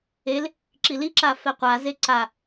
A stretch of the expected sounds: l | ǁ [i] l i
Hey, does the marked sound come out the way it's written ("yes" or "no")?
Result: yes